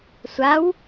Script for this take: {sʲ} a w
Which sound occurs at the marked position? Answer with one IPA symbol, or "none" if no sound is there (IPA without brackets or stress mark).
sʷ